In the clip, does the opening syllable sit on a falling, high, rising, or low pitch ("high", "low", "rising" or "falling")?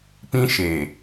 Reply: high